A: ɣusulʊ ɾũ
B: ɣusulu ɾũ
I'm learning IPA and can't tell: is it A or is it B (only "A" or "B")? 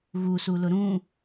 A